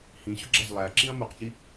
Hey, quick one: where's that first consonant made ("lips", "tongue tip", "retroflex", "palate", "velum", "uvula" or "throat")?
throat